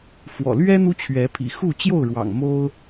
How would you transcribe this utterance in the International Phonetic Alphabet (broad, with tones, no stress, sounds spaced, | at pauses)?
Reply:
f w ɔ̰˨˩ l ɥ ɛ˦ n̪ u˦ t͡ɕʰ ɥ ɛ˨˦ pʰ ḭ˨˩ x u˥˨ t͡ɕ j o˥˨ ʊ̯ ɻ w ɑ̰˨˩ ŋ m o˦ ʊ̯